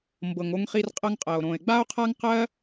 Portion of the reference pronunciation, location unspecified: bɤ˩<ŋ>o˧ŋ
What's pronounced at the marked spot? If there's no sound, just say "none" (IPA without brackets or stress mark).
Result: ŋ